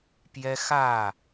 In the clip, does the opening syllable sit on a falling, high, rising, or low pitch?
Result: high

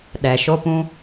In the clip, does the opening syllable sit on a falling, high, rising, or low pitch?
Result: low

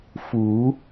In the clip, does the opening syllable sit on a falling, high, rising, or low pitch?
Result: rising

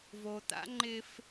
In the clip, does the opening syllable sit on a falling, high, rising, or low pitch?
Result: low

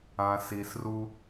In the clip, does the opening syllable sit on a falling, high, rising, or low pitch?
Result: low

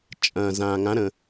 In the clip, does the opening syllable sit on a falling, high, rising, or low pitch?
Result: low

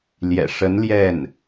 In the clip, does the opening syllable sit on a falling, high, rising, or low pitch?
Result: low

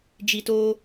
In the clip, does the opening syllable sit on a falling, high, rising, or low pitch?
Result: low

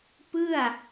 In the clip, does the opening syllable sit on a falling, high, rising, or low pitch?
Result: falling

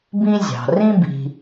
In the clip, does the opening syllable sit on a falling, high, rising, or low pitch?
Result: high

